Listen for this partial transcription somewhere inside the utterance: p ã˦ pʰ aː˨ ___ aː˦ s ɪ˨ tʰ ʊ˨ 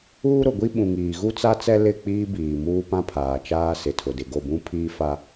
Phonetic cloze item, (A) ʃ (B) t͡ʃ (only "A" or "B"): B